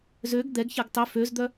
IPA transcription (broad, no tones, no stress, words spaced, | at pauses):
zøɡ d̪ɛɡçɛɡ tˤʏ føzd̪œ